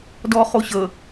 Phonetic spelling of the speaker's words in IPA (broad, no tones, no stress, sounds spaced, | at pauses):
d ɔː χ o ɕ əː